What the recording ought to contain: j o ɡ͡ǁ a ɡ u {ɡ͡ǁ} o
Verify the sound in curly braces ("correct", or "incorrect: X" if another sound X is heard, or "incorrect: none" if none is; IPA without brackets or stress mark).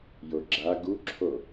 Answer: incorrect: ǁʰ